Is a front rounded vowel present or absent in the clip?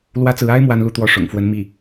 absent